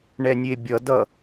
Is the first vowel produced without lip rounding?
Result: yes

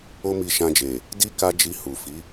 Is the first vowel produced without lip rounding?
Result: no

